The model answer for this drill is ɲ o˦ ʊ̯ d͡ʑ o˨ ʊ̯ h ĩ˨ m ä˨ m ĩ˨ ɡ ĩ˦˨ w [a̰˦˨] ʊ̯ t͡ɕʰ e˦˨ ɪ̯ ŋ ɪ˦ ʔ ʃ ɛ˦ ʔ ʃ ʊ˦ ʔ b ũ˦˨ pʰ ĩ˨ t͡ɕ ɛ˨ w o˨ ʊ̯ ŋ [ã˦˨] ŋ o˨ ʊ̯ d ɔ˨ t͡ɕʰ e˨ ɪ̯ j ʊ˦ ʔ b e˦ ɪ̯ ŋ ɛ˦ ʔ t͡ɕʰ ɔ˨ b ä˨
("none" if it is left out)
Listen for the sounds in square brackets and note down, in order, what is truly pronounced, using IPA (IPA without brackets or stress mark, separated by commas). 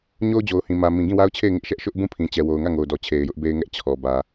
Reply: a˦, ä˦˨